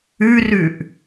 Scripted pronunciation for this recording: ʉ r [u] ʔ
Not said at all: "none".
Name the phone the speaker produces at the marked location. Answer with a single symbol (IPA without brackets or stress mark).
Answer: ʉ